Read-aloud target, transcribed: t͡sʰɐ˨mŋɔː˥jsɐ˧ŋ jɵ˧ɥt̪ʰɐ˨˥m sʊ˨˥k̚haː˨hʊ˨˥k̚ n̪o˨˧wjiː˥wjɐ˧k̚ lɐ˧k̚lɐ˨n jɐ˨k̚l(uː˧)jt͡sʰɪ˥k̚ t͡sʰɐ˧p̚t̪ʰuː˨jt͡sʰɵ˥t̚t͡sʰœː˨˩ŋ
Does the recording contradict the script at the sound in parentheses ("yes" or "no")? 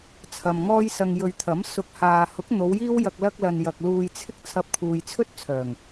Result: no